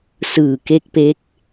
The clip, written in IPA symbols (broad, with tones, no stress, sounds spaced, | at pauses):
s ɯː˨˩ k e˦˥ k̚ p e˦˥ k̚